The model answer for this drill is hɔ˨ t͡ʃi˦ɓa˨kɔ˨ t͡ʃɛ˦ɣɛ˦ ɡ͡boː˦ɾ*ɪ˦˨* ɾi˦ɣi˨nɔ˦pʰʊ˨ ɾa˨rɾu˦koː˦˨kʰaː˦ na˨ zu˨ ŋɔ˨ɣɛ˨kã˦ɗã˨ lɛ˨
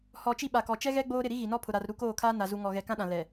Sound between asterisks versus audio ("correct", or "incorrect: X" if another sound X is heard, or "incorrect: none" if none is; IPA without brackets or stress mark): correct